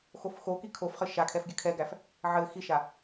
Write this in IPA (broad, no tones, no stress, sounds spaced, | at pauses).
x o f x o k i kʰ o f χ ɘ ʃ a kʰ ɛ f ɡʲ ɘ kʰ ɛ ɡ æ f | ʕ ɘ x i ʃ a